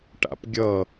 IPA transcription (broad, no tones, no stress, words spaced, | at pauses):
ʈa̰pɡʲʌ